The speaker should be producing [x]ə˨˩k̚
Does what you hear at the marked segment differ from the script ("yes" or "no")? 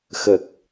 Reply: no